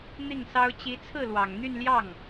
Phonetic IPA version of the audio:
n̪ i˥˩ ŋ s ɑ˥ ʊ̯ t͡ɕ i˧˥ t͡sʰ ɹ̩˥˩ l w ɑ˨˩ ŋ n̪ y˥˧ n l j ɑ˥˩ ŋ

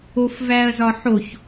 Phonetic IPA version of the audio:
o f v æ ɐ̯ z ɒ ħ o ç

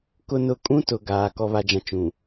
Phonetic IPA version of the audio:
k ʊ˦ n ʊ˦˨ kʼ ũ˦ t ʊ˨ ɡ aː˨ k ɔ˨ β a˨ d͡ʒ ã˨ t͡ʃ ũ˨

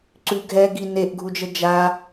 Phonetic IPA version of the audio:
ǀ ʉ ɡʱ ɛ ɡ i n e ʔ ɡʱ u d͡ʒ ə d͡ʒ a

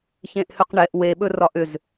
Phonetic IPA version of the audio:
ç ẽ ʔ h ʏ q ɳ ɛ ʔ w e ɓ ɵ r ɒ ʔ ʏ z

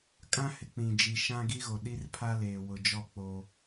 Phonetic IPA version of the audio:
kʼ ã˦ h ɪ˨ k͡p ĩ˨ d͡ʒ i˨ ʃ ã˦ ɡ i˦ ɣ o˨ ɗ i˦ r pʰ a˦ l eː˨ w ʊ˨ d͡ʒ ɔ˦˨ k͡p o˦

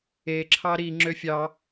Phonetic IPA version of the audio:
e ǁʰ ɑ ɾ i ŋ͡ǁ ø fʲ ɑ

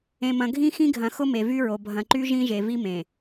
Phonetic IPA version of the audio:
ẽ˨ m ɐ̃˨ ɡʱ ĩ˦ x ĩ˦ ɡʱ ɐ̃˨ x ʊ˦ m e˨ v y˦ ɹ o˨ bʱ ɐ̃˨ ǃ y˦ ʒ ĩ˦ ʒ e˨ v i˦ m ẽ˨

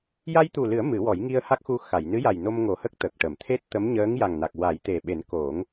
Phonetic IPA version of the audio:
j a˧ j t̪ u˨˩ l ɨ˨˩˦ ə̯ m ɨ˨˩˦ w ɔ˨˩˦ j ŋ i˧ ə̯ h a˦˥ k̚ x u˧ x a˨˩˨ j n ɨ˧˥ j a˨˩ j n o˧ m ŋ o˨˩ h ə˦˥ k̚ t̪ ə˨˩ k̚ ʈ ə˨˩˨ m t̪ʰ e˦˥ t̚ t̪ ə˧˥ m ɲ əː˧˥ ŋ j a˨˩ ŋ n a˨˩ k̚ w a˨˩˦ j t̪ e˨˩ ɓ e˨˩˦ n k o˨˩˦ ŋ

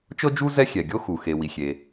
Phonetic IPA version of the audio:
t͡ʃ ɤ˥ d͡ʒ u˥ z ɛ˥ xʲ ɛ˩ ɡʲ o˥ x u˩ x e˩ w i˩ xʲ e˩

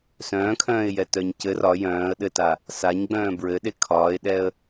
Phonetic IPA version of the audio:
s œ̃ː kʰ œ̃ː ɪ̯ j ɛ t œ ɲ c ɘ r ɒ j œ̃ː ə̯ ɗ ɘ t a | s a ɲ ɡ͡b œ̃ː b ɹ ɘ ɗ e kʰ ɒː ɪ̯ ɗ ɛ ə̯

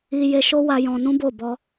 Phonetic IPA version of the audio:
i˧ j e˧ ʃ o˦ w a˧ j ɔ̃˧ n ũ˦ b o˦˨ b ɔ˧

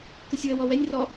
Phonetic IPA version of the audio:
k ɯ sʲ w ə w ɔ w ɛ nʲ r ɔ

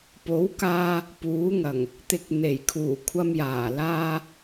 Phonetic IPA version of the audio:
p o˨˥ w k aː˧ | p uː˨˥ ŋ ɐ˨˩ ŋ | t̪ ɪ˨ k̚ n̪ e˨˩ j kʰ uː˨˩ kʷʰ ɐ˧ m j aː˨˩ l aː˧

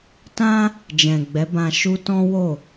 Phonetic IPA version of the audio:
t ã˦ | d͡ʒ ɛ̃˨ ɡ͡b ɛ˨˦ b ã˧ ʃ u˦ t ɔ̃˦ w o˦˨

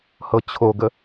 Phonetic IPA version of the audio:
h ɤ t͡ɕʰ o ɡ ə

